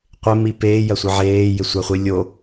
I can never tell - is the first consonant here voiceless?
yes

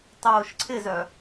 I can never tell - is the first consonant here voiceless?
yes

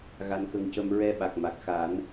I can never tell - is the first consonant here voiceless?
no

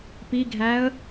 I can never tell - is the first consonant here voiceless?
yes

